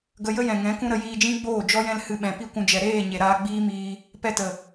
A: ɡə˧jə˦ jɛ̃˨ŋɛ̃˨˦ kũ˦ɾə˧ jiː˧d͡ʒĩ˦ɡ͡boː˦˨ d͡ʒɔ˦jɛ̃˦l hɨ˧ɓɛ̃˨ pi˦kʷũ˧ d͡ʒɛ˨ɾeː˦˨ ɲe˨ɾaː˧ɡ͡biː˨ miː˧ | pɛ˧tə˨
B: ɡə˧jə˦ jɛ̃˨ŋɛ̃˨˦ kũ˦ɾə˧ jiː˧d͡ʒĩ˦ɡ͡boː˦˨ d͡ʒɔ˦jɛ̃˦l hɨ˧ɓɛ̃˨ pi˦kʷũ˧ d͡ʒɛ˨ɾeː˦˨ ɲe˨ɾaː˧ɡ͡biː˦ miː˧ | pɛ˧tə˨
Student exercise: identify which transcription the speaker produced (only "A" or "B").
B